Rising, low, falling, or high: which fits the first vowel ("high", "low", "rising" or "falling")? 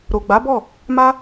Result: low